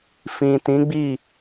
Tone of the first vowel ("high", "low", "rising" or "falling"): low